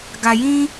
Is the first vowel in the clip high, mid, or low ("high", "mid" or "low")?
low